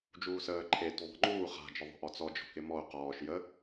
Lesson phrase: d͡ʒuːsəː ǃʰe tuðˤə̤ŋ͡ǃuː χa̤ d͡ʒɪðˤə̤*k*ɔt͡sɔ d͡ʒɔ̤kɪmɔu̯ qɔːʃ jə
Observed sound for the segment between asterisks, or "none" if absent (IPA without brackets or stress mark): ʔ